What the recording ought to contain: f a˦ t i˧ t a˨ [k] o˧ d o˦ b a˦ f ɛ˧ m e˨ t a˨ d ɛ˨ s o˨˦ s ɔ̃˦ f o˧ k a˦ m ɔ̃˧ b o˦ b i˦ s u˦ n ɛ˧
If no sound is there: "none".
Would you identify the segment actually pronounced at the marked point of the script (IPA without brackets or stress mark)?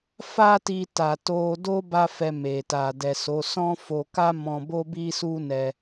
t